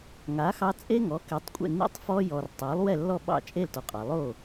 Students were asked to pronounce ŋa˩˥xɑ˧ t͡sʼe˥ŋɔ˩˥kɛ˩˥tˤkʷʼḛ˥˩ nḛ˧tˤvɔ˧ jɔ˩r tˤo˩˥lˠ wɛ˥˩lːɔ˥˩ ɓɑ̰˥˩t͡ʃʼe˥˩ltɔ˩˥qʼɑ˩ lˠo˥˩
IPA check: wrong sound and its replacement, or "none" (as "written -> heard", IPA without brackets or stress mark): v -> f